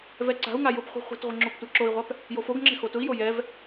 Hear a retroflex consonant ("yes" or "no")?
no